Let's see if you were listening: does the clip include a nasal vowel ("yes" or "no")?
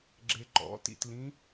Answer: yes